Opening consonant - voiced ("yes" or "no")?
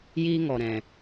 yes